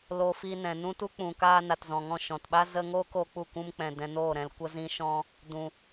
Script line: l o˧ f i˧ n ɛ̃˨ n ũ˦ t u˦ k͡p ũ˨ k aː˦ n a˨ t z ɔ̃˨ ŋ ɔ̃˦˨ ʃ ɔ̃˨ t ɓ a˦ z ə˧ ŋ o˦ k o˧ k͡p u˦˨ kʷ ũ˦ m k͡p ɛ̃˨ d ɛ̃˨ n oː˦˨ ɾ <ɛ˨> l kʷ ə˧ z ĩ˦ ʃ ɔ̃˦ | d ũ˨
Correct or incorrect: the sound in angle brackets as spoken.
incorrect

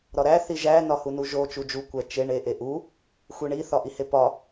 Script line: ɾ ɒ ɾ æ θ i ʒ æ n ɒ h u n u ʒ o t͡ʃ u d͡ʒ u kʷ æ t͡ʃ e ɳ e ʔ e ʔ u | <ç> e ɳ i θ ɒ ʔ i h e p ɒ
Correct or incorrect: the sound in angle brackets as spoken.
incorrect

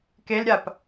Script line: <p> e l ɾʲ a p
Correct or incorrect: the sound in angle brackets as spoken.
incorrect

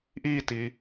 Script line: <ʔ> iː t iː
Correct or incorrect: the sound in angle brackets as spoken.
correct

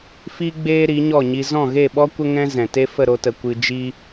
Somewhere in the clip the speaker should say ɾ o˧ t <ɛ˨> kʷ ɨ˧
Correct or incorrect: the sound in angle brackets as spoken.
incorrect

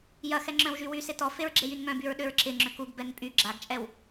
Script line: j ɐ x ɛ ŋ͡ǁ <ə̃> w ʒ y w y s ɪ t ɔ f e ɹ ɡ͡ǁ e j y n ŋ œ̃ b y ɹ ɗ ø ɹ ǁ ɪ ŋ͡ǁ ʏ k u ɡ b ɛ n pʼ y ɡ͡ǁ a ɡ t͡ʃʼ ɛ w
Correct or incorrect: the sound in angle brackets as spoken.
incorrect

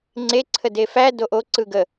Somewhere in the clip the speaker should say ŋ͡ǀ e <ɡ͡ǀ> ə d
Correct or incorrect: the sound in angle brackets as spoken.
incorrect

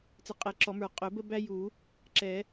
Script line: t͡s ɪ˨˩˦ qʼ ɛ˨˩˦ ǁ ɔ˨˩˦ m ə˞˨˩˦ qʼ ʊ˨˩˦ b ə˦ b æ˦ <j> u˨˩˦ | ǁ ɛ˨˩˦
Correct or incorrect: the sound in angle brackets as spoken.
correct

